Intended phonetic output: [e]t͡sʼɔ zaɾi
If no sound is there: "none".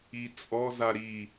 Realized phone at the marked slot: i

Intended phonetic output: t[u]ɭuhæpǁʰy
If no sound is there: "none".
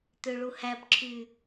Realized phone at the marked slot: ø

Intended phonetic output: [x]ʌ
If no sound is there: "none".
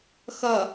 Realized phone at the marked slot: x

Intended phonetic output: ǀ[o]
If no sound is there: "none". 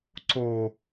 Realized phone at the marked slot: o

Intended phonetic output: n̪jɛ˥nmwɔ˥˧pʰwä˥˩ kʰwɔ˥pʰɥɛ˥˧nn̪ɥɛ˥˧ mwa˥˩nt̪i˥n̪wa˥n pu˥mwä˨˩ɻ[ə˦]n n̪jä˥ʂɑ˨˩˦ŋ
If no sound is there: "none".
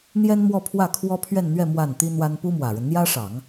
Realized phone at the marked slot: ə˦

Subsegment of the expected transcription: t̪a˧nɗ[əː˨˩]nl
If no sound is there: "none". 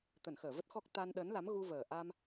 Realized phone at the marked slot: əː˨˦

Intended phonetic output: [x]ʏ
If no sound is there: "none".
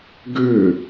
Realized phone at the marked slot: ɡ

